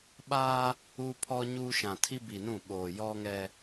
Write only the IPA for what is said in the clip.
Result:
ɓ aː˦ | u˦ pʰ ɔ˦ ɲ uː˦ ʃ ã˨ tʰ i˦ b i˨ n ũ˦˨ ɓ oː˨ j ɔ˦ ŋ ɛ˦

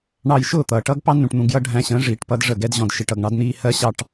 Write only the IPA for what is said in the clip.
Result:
ɳ ɑ˧ j ʃ ʊː˦˨ t̪ ʌː˨ ʈ ʌː˦ ɡ p ɑ˦ n ũ˨ ʈ n̪ ũ˨ ɡ j ʌ˧ ɖʱ æ̃˧ ɕ ə̃ː˨˦ ʐ iː˨ ʈ p ʌ˧ d ʐ ə˦˨ ɡ ɛ˦ d ʑ ɔ̃˧ d ʃ i˨ ʈ ʌ˨ ɡ ɳ ɑ˧ d n̪ iː˧ h ɜ˦ ɕ ɑ˦ ʈ

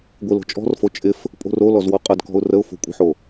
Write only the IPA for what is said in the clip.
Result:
ɡʷ ɪ l o̤ t͡ʃʼ ɔ̤ r f o t͡ʃʼ ɪ f | pʼ o̤ r o l ɔ z w ɔ qʼ ə d k ɔ̤ ʊ̯ r ə ʊ̯ f o̤ kʷʼ ə̤ ħ o

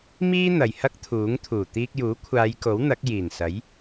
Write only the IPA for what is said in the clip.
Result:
m iː˥ n̪ ɐ˨ j h ɐ˥ k̚ t̪ʰ uː˨˥ ŋ t̪ʰ uː˨˩ t̪ iː˧ k̚ j uː˨˥ kʷʰ aː˨˧ j k o˨˥ w n̪ ɐ˨˥ k̚ j iː˨˩ n s ɐ˨˥ j

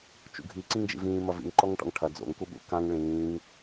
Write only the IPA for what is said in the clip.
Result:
t͡ʃ ṵ ɡʱ i ǀ ĩ ŋ d͡ʒ ḭ v ĩː m ɐ v ḭ ŋ ǃ ɔ ŋ ʈ ɔ̰ ŋ ʈʰ ɐ d͡z o̰ ŋ k u ɓ ṵ k ã ŋ ɭ ĩː ŋ

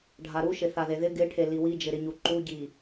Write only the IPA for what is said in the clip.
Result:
ɖʱ a ɾ u ʃ ɪ θ a ð e ð ɪ ɡ ɪ ʈʰ e l i w i d͡ʒ ɪ ɾ ɪ ɲ u ǃ u ɟ i

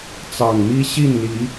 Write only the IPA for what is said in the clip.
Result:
t͡s ɑ˨˩ ŋ m i˦ ɕ i˥˨ n l i˨˦

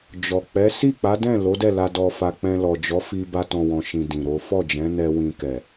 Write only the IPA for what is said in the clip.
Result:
d͡ʒ ɔ˨ k͡p ɛ˨˦ s i˦˨ k͡p a˨˦ d ɛ̃˦˨ l o˨˦ d ɛ˦˨ l a˧ d ɔ˧ f a˧ k͡p ɛ̃˧ l ɔ˨ d͡ʒ ɔ˨˦ f i˧ b a˧ t ɔ̃˨ w ɔ̃˨ ʃ ĩ˨ d ĩ˨ ɾ o˨˦ f ɔ˦˨ d͡ʒ ɛ̃˨˦ n ɛ˧ w ĩ˧ k ɛ˨

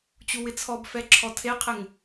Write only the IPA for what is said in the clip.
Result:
t͡ɕ u w ɪ t͡sʰ ɔ b f ɛ ǁʰ ɔ tʰ e qʰ e ŋ

